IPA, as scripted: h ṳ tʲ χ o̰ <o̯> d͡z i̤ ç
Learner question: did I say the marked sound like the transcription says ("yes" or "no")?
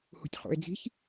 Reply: no